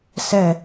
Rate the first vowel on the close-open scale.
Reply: mid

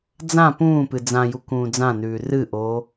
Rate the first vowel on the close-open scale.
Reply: open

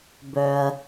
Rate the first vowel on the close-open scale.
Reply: mid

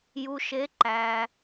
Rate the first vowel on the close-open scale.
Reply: close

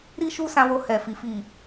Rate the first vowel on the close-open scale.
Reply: close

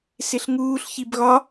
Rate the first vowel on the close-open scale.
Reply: close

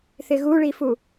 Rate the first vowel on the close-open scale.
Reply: close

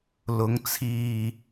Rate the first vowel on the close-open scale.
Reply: close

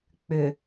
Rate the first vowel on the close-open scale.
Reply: close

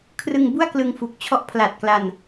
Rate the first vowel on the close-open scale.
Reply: close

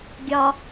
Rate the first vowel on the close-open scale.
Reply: open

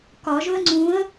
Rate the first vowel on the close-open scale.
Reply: open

